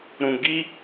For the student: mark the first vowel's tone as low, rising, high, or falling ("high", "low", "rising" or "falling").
low